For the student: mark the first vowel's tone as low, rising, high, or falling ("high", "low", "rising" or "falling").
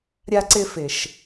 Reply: high